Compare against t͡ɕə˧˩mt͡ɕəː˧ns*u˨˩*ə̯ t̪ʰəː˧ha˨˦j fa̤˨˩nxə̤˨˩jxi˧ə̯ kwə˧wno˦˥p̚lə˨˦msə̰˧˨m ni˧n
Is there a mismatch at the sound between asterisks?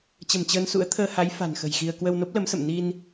yes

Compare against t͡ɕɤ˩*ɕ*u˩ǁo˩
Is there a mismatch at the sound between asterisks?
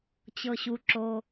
no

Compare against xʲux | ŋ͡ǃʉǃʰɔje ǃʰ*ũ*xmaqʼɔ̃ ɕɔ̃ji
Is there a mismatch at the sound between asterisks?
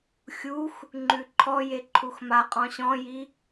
yes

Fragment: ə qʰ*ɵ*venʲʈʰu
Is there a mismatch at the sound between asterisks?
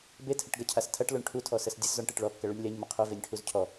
no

